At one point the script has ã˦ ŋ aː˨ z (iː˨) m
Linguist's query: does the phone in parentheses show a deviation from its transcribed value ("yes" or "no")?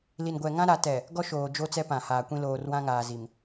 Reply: yes